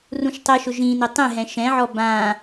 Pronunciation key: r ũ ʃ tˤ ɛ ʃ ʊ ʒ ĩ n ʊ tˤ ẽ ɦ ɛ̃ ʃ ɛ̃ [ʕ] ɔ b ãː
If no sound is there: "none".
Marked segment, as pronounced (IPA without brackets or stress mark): ʕ